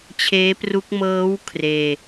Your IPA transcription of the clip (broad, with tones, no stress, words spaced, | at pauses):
t͡ɕʰeː˦˥pru˦˥k̚ mɤː˦˥w kʰreː˧